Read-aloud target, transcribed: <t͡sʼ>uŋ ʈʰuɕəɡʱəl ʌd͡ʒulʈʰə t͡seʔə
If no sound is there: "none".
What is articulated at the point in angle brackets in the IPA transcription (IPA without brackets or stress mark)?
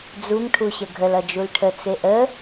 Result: d͡z